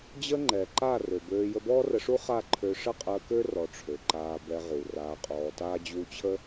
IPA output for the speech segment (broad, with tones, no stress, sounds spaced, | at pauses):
d͡ʑ ə˦ ŋ͡ǃ ɛ˨ ǃ a˦˨ r ø˨ b øː˧ j ə˧ b ɔː˦ r ə˧ ʂ u˦ χ a˦˨ ǃʰ ø˧ ʂ ə˦ qʼ əː˧ k ø˦ r ɔ˨ ʈ͡ʂʰ ø˨ ǃ aː˧ b ɛ˧ ʁ u˨ r aː˧ qʼ ɔː˧ t aː˦ d͡ʑ u˧ t͡ɕʰ ə˦